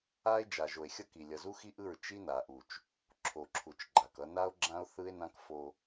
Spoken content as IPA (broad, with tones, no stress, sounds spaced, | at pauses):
a˦ e̯ d͡ʒ a˨ ʒ o˨ e̯ xʲ ʌ˦˨ k i˨ lʲ ʌ˨ z u˦ x i˦ ʔ ɯ˦˨ ɹ t͡ʃ i˦ n a˨ ʔ u˨ t͡ʃ | ǁʰ o˨ ǁʰ u˨ t͡ʃ ɡ͡ǃ a˨ k ʌ˦ n a˦ o̯ ɡ͡ǁ ã˦ o̯ θ ɯ˦ e̯ n ã˦ k f o˦